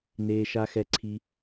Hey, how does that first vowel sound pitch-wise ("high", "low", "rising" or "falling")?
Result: low